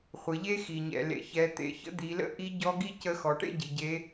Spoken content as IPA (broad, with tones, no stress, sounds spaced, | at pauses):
χʷ ɘ˩˧ ʎ e˥ x i˩ ɲ ɛ̰˩ l ḛ˩ ç ɛ˩˧ t̪ ḛ˩˧ ç ə̰˧˥ d̪ i˩˧ l ə̰˥ ʔ i˧˥ ɟ ɔ˧˥ ɡ i˥ c ə˧˥ x ɔ˩ ʈ ḛ˥ ɟ i˩˧ ɟ e˧˥